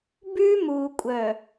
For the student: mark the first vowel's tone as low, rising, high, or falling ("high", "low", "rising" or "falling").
high